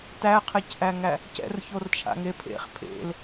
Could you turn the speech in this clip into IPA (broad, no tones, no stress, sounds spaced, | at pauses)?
t æ qʰ e c ʔ æ ŋ æ | c ɛ̰ r ç o r t͡ʃʰ a̰ ŋ e pʰ ḛ χ pʰ ḛ l